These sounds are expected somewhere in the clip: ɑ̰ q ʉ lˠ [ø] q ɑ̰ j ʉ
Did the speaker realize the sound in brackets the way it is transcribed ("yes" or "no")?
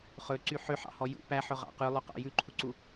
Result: yes